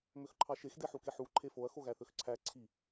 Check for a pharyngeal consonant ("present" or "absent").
present